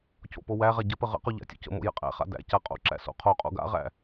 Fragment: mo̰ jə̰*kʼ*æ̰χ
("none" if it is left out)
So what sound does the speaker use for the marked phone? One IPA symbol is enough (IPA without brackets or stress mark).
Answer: qʼ